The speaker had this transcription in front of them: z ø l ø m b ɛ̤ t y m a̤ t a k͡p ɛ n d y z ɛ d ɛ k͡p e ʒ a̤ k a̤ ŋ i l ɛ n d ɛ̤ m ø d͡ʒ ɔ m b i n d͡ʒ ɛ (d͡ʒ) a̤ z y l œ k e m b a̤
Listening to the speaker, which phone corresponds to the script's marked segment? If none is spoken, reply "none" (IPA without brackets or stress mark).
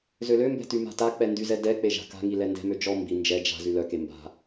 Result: d͡ʒ